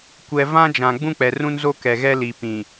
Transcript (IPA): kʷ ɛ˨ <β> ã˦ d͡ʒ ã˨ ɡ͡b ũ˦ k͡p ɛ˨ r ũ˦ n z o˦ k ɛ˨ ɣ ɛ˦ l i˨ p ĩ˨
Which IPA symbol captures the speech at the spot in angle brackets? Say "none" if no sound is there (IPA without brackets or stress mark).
v